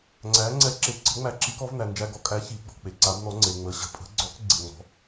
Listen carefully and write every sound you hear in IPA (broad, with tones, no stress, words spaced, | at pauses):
ŋ͡ǀæ˨˦ ŋ͡ǀɛ˨˦ǁe˨ ǀə̤˨˦ŋ͡mæ˨˦ ǁi˨˦kɔ˨˦vnæ˨ nd͡ʒæ˨ɡɔ˨kʼæ˨˦ çi˨˦ɡ͡bɔ̤˨ k͡pe˨ ǀa˨˦bnɔ˨˦ŋ͡ǀe˨ ŋ͡mə˨˦ɕə̤˨ pʼə̤˨˦ɡ͡ǀɔ˨˦k ɡ͡ǀe˨ŋ͡mɔ̤˨˦